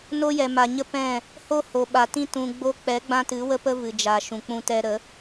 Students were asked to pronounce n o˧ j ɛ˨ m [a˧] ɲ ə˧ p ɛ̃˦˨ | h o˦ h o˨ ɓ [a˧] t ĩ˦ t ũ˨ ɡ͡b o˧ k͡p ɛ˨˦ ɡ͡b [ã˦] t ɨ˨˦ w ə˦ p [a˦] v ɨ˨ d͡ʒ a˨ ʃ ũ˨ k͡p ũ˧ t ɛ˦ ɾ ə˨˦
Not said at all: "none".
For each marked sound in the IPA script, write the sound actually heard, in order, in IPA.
a˨, a˨, ã˦, ə˦

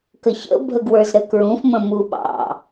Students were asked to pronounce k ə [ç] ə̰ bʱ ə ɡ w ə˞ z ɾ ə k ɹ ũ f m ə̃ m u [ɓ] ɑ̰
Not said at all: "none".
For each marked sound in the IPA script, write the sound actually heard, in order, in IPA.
ç, ɓ

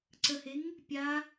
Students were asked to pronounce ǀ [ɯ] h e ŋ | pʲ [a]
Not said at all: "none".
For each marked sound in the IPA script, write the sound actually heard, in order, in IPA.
ə, a

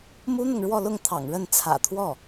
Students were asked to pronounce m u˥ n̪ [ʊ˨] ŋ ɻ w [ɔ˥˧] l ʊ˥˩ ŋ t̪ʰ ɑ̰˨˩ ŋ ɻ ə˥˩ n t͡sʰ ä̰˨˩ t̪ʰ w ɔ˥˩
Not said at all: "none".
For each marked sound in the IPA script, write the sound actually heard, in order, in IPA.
ʊ˨, ɔ˥˧

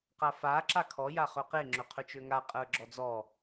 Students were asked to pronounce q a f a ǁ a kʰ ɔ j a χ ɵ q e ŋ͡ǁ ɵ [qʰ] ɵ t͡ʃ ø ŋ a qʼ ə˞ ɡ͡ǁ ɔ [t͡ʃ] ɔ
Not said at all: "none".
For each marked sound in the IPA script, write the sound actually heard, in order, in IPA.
qʰ, d͡z

